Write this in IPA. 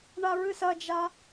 ɳ a ɹ ɨ s ɐ d͡ʒ a

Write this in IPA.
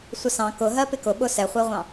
sʷ ə s ɑ̃ k ʊ ɦ ɜ p ɪ k ʊ ɓ ʊ s ɛ χʷ ɛ ʁʷ ɑ̃

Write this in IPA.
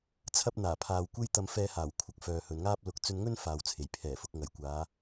t͡sʰ ɐ˥ p̚ n̪ aː˨˩ pʰ aː˨ w kʷ e˥ j t̪ ɐ˧ m f ɛː˧ h aː˨˩ w kʷʰ ɐ˨ k̚ f œː˨ h ɵ˨ n ŋ aː˥ p̚ l ʊ˨ k̚ t͡s ɵ˧ n ŋ ɵ˥ n f aː˨ w t͡sʰ e˨˩ j pʰ ɛː˨˩ f ʊ˨ k̚ ŋ ɐ˨˩ j kʷ aː˨˧

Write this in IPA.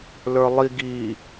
l ə˞ lˠ i ɡ i

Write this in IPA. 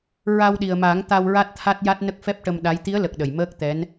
ɹ a˧ w ɗ i˨˩ ə̯ m a˨˩˦ ŋ t̪ a˧ w ɹ a˦˥ t̚ t̪ʰ a˦˥ t̚ j a˦˥ t̚ n ə˦˥ k̚ f ɛ˦˥ p̚ ʈ ə˧ m ɗ a˧˥ j t̪ i˧˥ ə̯ l ə˨˩ k̚ ɗ ə˨˩ j m əː˦˥ k̚ t̪ ɛ˧˥ n

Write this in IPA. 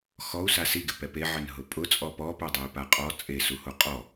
x ɔ u̯ s a s i ɡ ɪ p ɛ p e ʕ ɪ n ɦ ʊ pʼ ʊ t͡sʼ ɔ p ɔ p ʊ dˤ ɛ i̯ p a qʼ ɔ t͡sʼ e s u h o qʼ ɔ

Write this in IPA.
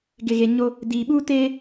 ɡ ɪ˨ ɣ e˨ ɲ o˦ | d iː˨ ɓ uː˦ t eː˦

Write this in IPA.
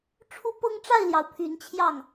ʈ͡ʂʰ u˦ p ɤ˦ ŋ ʈ͡ʂ a˥˨ ɪ̯ l j ɑ˩ ʊ̯ pʰ y˨˦ n t͡ɕʰ j ɑ˥˨ ŋ

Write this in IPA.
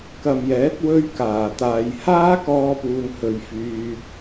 k ɐ˨ m j ɛː˨˥ t̚ w ɵ˧ ɥ k aː˨˩ t̪ aː˨ j h aː˥ k ɔː˧ p uː˨ n h ɵ˧ ɥ f yː˧ t̚

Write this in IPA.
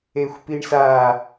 e xʷ p i ɳ s a

